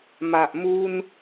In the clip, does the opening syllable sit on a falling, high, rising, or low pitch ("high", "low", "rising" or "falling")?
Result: low